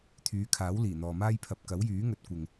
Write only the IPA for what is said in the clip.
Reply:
t̪ʰ yː˨˧ kʰ aː˨˥ w l iː˨˩ n̪ ɔː˨ m aː˥ j pʰ ɐ˨ p̚ k ɐ˨˥ w j yː˨˥ ŋ ɵ˨˥ t̚ kʷ ɪ˨ ŋ

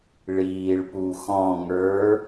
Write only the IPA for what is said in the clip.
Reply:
ɭ iː ɭ p u x ɔ̃ ŋ ə˞

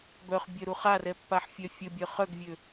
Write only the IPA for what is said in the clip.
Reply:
b œ χ bʲ œ ɾ u χ a r ɛ pː a ħ fʲ œ fʲ ə bʲ œ χ œ ɡ vʲ ø

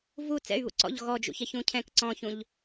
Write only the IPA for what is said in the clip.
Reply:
v u t͡s ɛ̰ y̯ β ṵ ǀ ɔ̰ ʎ ɣ ɔ d͡ʒ ṵ ç ɛ ç ũ cʰ ɛ̃ k ǀ ɔ̃ ç ũ ʎ

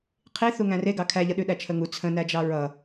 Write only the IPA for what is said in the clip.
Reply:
qʰ i θ u ŋ æ̃ r e ɡ ɑ kʰ æ ʎ ʌ ɗ ʉ ɗ æ t͡ʃʰ ə ŋ u t͡sʰ ə̃ n æ d͡ʒ ɑ ɹ ʌ

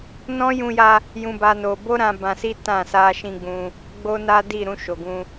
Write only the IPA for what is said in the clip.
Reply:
n ɔ̃˦ j ũ˧ j a˧ | j ũ˦ b a˦ n o˧ b o˦ ɾ ã˧ b ã˧ s i˦ t ã˦˨ s a˧ ʃ ĩ˧ ɡ͡b ũ˧ | ɡ͡b o˦ n a˦ d i˦˨ ɾ ũ˧ ʃ o˨ ɡ ũ˧

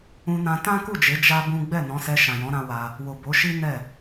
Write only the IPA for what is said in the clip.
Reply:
ũ˧ n ã˧ t ã˦ k u˦˨ d͡ʒ e˨˦ d͡ʒ a˦ b ũ˦ ɡ͡b ɛ˦˨ n ɔ̃˨˦ s ɛ˧ ʃ ã˨ j ɔ̃˨˦ ɾ ã˧ w a˧ | w o˨ b o˨˦ ʃ i˦ n ɛ˦˨

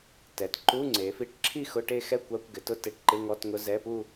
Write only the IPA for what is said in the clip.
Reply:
t ɛ˩˧ t ǃ u˧˥˧ ŋ͡ǀ e˩˧ f i˧˥˧ ʈ ǁʰ i˥˧ x ʊ˧˥˧ ʈ e˥˧ x ɛ˥˧ kʷ a˧˥˧ kʷ ɡ ɪ˩˧ t ʊ˥˧ t e˧˥˧ ʈ ǃ ɪ˧˥˧ ŋ ɔ˧˥˧ t ŋ ʊ˧˥˧ z ɛ˧˥˧ p u˥˧

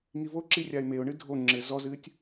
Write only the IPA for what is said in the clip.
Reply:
ŋ i v o ǁ i rʲ a ɪ̯ m e ʊ̯ ɳ ɨ dʱ o ŋ͡ǁ ɘ z ɔ z ɨː tʲ

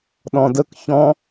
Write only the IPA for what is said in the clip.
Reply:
ɗ ɔ̃ d ə k ç ɔ̃

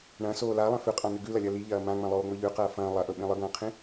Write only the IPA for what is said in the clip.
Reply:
ɳ ɐ̃ s oː l a lˠ ẽ f ʉ qʼ ã n ʉ ɡ ʉ l ɐ lʲ ɐ l i ʎ ɐː m ã ŋ͡m ɐ̃ lˠ oː ŋ͡m ɵ ʎ ʉ q ɐː f ɐ̃ː lˠ ɐ ʔ ɵ ɓ ĩ lˠ ɨ ɡ ɐ̃ː qʰ ĩ

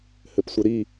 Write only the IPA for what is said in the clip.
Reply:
h ɘ p sʷ ɘ ɾ i

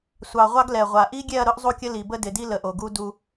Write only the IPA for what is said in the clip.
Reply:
sʷ ɑ˨ ʁʷ ɑ˦ ɡ l ɛ˨ ʁʷ a˨ ʔ i˦ ɡʲ ɛ˦˨ ɐ̯ ɾ ʊ˦ ʔ zˤ u˦ kʲ ə˦ l i˨ b ə˦ d ɪ˨ d i˦ l ə˨ ʔ o˨ ɡ u˦ d u˦

